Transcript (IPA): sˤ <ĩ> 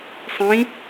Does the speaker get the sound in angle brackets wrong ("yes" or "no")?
no